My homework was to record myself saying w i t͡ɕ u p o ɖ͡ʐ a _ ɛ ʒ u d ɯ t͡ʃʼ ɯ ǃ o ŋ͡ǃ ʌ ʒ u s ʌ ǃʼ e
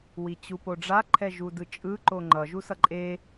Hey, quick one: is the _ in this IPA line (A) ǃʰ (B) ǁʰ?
A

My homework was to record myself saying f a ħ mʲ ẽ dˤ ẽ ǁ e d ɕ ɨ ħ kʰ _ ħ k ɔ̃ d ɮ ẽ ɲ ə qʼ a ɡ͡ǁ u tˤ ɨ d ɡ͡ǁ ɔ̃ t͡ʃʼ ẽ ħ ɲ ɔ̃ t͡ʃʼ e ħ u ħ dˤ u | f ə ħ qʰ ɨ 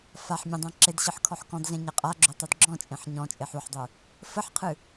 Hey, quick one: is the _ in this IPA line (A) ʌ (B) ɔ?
B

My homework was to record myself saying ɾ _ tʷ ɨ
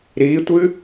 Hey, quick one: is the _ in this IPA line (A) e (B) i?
B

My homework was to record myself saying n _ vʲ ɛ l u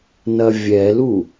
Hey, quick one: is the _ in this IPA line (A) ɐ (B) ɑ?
A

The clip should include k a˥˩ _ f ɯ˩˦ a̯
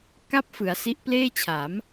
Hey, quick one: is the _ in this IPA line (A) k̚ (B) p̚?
B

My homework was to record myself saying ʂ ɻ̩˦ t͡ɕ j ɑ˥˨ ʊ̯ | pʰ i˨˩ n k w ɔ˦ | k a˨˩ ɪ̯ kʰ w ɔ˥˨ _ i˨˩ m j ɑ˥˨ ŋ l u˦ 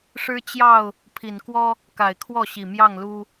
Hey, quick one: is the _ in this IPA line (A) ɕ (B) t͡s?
A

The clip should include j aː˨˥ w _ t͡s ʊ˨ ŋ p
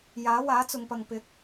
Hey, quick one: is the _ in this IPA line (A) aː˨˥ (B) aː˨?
A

